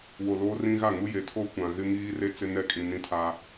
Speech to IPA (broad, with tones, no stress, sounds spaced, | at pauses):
w o˨ l oː˦ r ĩ˦ ɣ a˦˨ ŋ u˦ j e˨˦ tʰ o˦ kʷ ã˨ ɣ ɪ˦ ŋ iː˦ r e˦ t͡s ɪ˦ n ɛ˦ kʼ ĩ˨ n ĩ˦ tʰ a˦